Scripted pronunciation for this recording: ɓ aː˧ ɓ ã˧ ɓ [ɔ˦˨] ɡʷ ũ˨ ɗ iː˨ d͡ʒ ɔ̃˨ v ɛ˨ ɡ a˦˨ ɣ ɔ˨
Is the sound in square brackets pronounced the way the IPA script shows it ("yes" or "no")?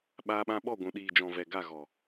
yes